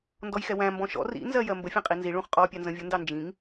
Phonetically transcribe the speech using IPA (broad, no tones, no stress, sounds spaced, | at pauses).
n d ɔ j x ɛ w æ̃ m b ɔ̃ ʃ ɔ̰ r ḭ n z ɜ j ɜ m b ə fʲ æ̃ qʼ i n z i ɭ ũ χ qʼ ɔ pʲ ɑ n z ə̃ vʲ ʊ n d ɑ n d͡ʒ ĩ ŋ